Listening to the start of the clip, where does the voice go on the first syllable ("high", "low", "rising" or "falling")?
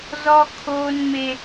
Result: high